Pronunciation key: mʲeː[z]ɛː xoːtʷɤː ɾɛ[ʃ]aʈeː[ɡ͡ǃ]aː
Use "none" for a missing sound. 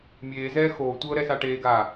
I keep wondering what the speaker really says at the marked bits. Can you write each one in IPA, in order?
z, s, ɡ

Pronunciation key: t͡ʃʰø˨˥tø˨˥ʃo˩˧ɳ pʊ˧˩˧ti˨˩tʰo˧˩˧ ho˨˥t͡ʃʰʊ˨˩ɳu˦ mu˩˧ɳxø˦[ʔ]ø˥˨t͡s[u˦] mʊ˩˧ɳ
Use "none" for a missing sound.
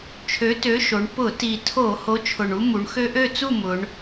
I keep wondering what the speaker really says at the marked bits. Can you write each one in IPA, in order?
ʔ, u˥˨

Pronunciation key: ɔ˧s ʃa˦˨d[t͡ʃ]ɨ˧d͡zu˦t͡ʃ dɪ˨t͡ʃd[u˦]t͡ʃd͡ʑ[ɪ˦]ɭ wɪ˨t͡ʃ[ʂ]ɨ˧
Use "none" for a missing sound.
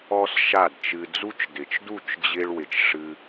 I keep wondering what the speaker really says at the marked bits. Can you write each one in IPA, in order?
t͡ʃ, u˦˨, ɪ˧, ʂ

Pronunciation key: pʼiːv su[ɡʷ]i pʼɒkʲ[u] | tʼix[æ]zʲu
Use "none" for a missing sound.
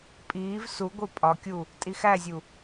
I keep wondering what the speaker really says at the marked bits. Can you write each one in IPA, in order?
ɡʷ, u, æ

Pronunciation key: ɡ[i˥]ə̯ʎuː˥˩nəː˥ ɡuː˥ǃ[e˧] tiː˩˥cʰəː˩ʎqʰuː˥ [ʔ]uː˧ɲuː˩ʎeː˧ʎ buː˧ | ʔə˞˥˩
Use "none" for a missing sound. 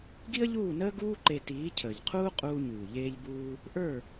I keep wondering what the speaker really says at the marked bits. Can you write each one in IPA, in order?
i˥, e˧, qʼ

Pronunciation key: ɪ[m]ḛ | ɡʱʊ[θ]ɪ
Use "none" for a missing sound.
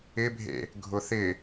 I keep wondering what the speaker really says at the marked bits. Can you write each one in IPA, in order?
bʱ, θ

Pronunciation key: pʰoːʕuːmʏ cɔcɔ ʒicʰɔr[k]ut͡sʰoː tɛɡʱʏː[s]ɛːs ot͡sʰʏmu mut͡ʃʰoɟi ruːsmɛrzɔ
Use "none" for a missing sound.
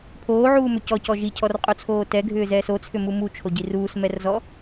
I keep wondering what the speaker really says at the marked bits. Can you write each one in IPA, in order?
qʼ, z

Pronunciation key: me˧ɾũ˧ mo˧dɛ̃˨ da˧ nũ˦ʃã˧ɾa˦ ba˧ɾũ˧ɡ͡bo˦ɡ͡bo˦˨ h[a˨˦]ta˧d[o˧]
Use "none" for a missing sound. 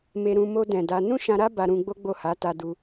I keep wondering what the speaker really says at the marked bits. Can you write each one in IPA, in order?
a˨˦, u˧

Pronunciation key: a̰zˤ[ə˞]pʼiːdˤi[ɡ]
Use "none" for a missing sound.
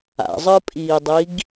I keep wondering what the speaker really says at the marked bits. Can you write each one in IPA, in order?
ə˞, ɡ

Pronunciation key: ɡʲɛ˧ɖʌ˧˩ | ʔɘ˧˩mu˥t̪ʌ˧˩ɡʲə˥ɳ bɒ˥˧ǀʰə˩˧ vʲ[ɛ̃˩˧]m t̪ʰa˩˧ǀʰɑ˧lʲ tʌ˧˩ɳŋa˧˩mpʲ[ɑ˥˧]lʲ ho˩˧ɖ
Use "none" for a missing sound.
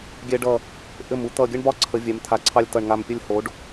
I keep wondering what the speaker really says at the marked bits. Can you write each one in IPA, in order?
ɛ˩˧, ə˥˧

